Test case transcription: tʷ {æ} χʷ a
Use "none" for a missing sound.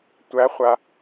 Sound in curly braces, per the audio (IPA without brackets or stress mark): æ